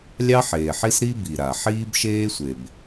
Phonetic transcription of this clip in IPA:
lʲ ɑ˥ ħ eː˩ ħ i˥ s ɾ i˥ b i˩ ɾ a˩ ħ iː˥ b ʃ eː˥ sʷ e˩ b

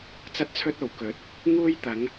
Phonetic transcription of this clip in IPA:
t͡s ɐ˥ t̚ t͡sʰ ɵ˥ t̚ o˨˩ w k ɵ˨˥ t̚ | ŋ uː˥ j t̪ ɐ˨˥ ŋ

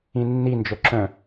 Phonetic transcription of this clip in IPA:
ĩ nː i n d͡ʒ œ ǁ œ̃

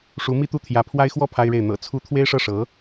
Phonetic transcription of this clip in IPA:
ʂ u˧˥ m i˥˧ t̪ u˥˩ t̪ʰ j ä˧˥ pʰ w a˥ ɪ̯ x w ɔ˥ pʰ a˥ ɪ̯ ɻ e˥˩ ɪ̯ n̪ ɤ̰˨˩ t͡sʰ u˧˥ t̪ʰ w e˥ ɪ̯ ʂ ɤ˥˩ ʂ ɤ˧˥

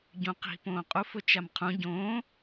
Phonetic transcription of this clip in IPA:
ɟ ũ q i̤ p õː qʼ u f ʊ t͡ʃ a m qʰ ũ ɟ õː

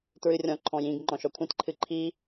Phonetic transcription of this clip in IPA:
t ɹ ɨ rʲ ɔ̃ ǃʰ ɔ̃ j ĩ ɡ ŋ͡ǃ ɔ̃ ʃ ɔ kʷʰ ẽ t ǃʰ ɨ ǃʰ i

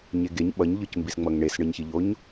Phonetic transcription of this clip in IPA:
ɲ e ɡ e ɲ ɓ ʌ ɲ ʎ ɯ c m b i s ŋ͡m ʌ ŋ ɳ e s ɳ ɯ ɲ ç i ʎ o ɲ

